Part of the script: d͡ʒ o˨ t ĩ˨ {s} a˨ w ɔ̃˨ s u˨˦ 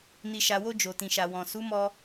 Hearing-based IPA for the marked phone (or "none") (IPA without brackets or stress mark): ʃ